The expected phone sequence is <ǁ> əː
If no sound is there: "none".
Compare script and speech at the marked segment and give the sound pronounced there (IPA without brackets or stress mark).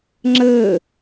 ŋ͡ǁ